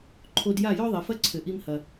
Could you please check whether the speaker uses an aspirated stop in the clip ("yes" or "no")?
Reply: yes